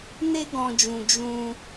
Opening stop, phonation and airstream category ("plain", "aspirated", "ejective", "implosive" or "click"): plain